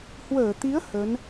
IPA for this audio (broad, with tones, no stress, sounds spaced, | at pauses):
h w əː˧˩ t̪ i˨˦ ə̯ h ə˨˦ n